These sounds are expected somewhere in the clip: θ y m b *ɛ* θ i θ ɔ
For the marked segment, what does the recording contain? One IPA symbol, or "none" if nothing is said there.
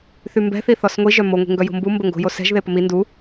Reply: ɛ̤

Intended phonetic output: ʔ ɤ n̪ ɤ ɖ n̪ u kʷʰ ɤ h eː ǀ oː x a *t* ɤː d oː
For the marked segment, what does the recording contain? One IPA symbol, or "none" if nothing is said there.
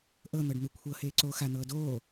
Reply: n̪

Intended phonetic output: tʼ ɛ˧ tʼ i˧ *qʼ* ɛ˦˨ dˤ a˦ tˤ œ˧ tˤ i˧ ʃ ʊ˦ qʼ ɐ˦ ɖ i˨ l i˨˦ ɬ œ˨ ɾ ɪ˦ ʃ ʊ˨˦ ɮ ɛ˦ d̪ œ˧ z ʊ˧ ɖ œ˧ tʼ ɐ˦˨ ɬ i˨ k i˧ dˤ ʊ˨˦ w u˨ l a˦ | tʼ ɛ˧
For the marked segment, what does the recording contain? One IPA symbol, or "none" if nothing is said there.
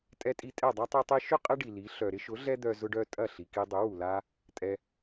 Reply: tʼ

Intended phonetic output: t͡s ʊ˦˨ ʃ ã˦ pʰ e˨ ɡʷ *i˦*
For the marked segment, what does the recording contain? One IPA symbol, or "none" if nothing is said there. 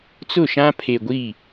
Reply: i˦˨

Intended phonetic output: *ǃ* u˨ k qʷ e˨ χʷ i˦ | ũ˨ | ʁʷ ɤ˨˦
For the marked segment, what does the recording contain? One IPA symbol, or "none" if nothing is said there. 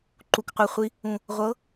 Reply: ǃ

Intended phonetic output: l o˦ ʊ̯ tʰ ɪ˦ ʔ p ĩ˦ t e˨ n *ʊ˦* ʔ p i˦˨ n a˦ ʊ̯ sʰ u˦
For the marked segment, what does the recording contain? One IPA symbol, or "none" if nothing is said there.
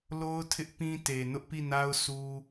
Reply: ʊ˦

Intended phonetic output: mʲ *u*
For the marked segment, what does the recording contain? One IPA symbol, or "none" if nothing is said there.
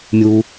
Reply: u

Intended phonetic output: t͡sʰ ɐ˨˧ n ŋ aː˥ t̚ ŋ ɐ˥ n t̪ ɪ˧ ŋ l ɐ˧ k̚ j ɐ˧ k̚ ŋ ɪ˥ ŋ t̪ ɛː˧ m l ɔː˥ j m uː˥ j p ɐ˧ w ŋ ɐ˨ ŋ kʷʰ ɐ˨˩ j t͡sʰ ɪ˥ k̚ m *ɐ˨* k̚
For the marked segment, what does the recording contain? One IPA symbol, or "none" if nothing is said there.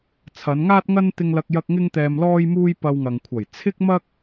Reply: ɐ˥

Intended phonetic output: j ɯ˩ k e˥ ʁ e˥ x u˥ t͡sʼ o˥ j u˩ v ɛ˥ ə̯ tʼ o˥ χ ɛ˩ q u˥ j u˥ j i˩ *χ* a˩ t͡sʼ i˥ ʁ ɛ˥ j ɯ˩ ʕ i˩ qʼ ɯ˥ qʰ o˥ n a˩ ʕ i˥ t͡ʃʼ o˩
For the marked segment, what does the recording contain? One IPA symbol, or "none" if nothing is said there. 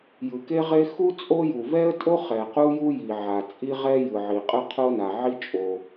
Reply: ʕ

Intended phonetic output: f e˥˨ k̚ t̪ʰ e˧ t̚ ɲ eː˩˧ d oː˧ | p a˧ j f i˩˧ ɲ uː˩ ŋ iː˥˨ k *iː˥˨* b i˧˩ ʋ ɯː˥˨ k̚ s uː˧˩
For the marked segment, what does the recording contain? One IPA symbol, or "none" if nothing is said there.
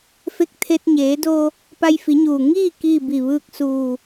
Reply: iː˥˨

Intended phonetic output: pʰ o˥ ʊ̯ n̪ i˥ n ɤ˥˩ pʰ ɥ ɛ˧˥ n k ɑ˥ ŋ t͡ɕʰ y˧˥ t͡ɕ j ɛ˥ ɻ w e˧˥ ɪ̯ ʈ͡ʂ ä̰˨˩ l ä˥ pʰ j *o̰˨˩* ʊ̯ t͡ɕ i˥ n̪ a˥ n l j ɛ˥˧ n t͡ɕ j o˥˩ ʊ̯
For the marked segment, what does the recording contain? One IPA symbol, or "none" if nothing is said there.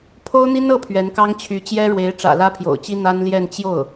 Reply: o̰˨˩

